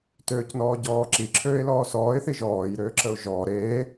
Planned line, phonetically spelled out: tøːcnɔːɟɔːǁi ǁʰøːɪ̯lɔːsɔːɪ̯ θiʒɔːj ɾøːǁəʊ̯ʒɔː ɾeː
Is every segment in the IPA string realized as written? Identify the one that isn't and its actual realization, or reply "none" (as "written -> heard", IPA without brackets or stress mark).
none